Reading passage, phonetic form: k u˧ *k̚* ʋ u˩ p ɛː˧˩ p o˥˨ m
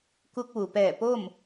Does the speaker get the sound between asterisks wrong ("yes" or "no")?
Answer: no